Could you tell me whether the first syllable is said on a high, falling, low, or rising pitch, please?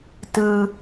low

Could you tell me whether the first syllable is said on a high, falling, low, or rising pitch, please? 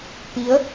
rising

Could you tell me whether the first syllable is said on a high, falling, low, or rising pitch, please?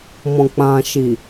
low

